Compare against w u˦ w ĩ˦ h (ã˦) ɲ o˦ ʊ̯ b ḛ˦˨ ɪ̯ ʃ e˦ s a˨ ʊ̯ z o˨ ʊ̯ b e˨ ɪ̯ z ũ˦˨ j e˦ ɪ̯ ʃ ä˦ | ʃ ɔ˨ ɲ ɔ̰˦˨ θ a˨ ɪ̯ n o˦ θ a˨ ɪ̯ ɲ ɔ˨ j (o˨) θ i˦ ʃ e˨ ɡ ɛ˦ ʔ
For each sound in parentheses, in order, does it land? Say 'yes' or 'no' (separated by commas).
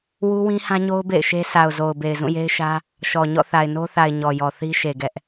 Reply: yes, no